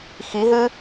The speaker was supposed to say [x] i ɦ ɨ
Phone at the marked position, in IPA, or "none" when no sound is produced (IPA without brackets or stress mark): x